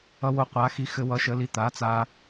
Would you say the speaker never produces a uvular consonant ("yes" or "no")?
no